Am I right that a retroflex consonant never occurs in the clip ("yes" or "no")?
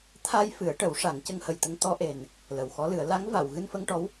no